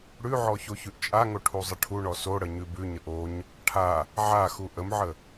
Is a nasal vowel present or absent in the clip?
absent